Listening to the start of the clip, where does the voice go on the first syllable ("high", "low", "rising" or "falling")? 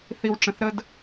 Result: high